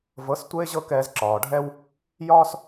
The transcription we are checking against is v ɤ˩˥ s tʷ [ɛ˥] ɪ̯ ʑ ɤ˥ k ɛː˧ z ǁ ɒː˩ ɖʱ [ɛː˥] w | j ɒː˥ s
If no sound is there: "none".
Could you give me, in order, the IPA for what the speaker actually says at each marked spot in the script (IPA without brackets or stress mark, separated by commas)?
ɛ˥, ɛ˥